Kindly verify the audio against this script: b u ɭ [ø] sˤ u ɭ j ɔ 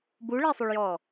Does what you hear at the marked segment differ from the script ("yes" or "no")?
yes